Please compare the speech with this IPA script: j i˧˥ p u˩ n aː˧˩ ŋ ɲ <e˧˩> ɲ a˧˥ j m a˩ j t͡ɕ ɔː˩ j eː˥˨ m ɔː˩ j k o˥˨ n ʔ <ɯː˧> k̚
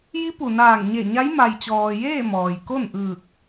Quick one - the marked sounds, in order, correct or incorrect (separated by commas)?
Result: correct, incorrect